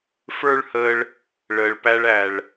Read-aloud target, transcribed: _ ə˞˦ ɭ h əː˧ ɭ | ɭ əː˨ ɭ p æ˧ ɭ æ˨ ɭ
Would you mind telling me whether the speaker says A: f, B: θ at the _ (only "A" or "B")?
A